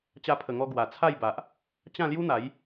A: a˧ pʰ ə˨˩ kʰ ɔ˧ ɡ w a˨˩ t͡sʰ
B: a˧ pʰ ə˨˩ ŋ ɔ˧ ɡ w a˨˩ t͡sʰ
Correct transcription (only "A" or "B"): B